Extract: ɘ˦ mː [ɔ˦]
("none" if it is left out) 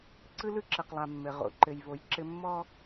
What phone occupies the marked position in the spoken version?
ɔ˦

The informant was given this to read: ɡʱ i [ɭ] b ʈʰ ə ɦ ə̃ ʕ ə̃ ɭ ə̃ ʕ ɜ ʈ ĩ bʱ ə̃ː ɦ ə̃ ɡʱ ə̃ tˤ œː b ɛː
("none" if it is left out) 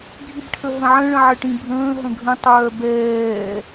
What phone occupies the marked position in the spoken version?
none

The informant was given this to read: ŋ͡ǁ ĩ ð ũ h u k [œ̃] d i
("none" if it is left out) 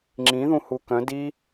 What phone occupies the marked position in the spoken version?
œ̃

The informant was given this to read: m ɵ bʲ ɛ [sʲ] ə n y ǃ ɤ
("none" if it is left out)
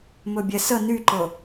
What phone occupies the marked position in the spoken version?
s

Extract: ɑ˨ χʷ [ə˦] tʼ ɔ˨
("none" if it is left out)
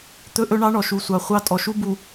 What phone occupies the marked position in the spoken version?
ɑ˦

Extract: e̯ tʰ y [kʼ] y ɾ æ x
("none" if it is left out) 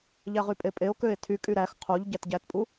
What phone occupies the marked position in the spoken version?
kʼ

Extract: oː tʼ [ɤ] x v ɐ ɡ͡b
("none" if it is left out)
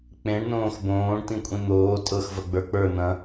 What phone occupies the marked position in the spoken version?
ɤ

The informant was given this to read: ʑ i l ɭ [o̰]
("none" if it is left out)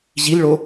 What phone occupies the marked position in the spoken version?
o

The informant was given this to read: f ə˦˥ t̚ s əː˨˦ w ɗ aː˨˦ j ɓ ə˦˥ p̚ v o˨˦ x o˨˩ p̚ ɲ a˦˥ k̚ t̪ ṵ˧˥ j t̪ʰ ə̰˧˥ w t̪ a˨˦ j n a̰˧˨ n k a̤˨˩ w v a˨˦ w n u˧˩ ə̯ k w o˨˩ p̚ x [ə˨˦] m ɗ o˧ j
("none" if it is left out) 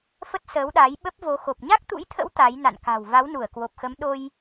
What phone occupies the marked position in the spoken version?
ə˨˦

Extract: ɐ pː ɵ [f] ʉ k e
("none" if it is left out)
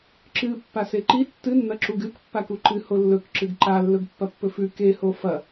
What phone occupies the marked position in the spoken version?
f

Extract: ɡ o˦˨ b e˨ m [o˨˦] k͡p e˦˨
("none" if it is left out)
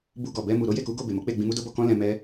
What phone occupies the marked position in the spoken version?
o˨˦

